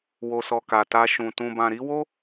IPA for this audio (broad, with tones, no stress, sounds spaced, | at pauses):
w o˨ s ɔ˨ k a˨ t a˧ ʃ ũ˨ t ũ˨ b ã˨ ɾ i˨˦ w o˦